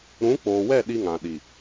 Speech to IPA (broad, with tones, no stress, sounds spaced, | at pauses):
ɾ ũ˨˦ k͡p oː˨ w ɛ˦˨ ɗ i˦ ŋ ã˨ ɗ i˨